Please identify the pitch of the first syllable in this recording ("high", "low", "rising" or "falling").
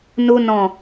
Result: high